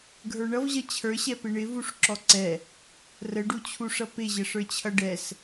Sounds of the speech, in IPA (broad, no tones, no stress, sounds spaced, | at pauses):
ɡʱ ə˞ ɳ ʌ v ʑ ʌ t͡ɕʰ ə˞ ɕ ɛ p ɪ ɳ ɪ v u ʂ ǁ ɔ ǀ ɛ | r ə ɖ u t͡ɕʰ u ʂ ʌ p ɪ ʑ ə ʂ ə˞ t͡ɕʰ ʌ ɖ ɛ s